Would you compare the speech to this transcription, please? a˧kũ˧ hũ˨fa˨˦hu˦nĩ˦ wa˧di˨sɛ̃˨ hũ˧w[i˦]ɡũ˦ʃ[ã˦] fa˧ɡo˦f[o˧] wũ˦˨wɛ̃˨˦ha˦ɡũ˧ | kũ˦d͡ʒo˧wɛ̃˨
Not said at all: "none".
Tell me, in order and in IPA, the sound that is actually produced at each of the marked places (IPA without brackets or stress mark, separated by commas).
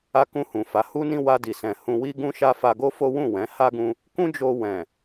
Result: i˦, a˦, o˦